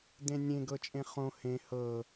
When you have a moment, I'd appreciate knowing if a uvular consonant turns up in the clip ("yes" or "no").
yes